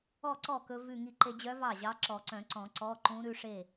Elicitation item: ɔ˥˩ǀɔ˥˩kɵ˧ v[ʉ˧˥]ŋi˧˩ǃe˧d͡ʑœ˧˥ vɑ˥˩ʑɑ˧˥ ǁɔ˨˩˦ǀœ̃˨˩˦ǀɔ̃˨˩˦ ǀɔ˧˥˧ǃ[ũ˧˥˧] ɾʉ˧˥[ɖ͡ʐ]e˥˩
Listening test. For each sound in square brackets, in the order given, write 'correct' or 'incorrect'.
incorrect: ʉ˧˩, incorrect: ũ˧˥, incorrect: ʂ

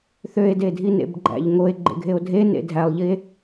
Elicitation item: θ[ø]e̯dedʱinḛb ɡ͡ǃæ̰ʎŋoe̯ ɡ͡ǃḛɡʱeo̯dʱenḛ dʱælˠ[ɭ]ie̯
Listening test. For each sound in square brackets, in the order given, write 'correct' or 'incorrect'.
correct, incorrect: ʎ

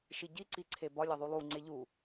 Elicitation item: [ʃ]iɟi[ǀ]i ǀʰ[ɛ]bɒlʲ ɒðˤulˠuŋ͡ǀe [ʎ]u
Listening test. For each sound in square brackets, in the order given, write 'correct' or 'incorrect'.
correct, correct, incorrect: e, correct

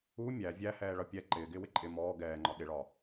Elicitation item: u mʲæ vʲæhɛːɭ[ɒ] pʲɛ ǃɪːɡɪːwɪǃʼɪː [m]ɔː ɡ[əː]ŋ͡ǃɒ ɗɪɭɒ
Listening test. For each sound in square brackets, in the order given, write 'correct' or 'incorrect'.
incorrect: ʌ, correct, incorrect: ɛː

